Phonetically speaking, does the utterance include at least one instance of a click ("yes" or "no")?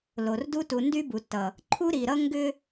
yes